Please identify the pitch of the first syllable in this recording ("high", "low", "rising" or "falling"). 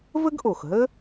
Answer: high